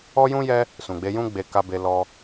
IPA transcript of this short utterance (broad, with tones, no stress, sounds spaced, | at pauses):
ɔ˦ j ũ˦ j ɛ˦ | s ũ˨ ɡ͡b e˧ j ũ˦ ɡ͡b e˧ k a˧ b e˧ l ɔ˦